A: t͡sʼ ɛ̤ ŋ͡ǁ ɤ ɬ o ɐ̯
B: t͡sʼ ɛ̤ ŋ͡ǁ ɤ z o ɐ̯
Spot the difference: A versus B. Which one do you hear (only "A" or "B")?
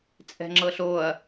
A